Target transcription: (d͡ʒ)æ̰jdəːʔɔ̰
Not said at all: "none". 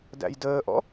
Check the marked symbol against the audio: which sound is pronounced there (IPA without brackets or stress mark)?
d